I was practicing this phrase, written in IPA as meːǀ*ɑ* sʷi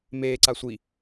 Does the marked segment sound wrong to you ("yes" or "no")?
yes